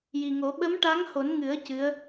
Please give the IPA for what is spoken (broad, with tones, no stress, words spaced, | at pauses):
ji˨˩ŋo˨˩˦ ɓə˧˥mʈa˧˥ŋho˨˩˦nŋɨ˨˩˦ə̯ cɨ˧˥ə̯